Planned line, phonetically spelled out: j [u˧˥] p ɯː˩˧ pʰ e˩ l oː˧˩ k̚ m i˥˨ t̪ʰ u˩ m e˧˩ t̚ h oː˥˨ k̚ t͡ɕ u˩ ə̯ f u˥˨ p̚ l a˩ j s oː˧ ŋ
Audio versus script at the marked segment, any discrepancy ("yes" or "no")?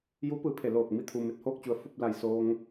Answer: no